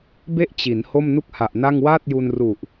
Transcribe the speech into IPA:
be˥˩ʔt͡ɕi˩˦n ho˥˩mnu˥˩k̚ha˨˩ʔna˥˩ŋ waː˥˩t̚ju˧nru˨˩ʔ

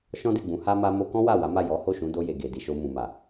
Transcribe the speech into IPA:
ʃɔ̃˦de˦˨ɡ͡bũ˨˦ha˦ ma˧ mo˧kɔ̃˦ wa˦˨wa˨˦ma˦˨ jɔ˨˦ ho˦˨ʃũ˨˦do˧je˨ ɡe˨di˨ʃo˧ mũ˨ma˨

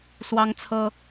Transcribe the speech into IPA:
swɑ˦ŋt͡sʰɤ˦

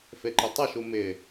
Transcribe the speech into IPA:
feǃɪtˤɐʃu mɪ

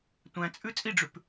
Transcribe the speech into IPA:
tʷæ̃t͡sʼʉ t͡sʼiɖ͡ʐʉp

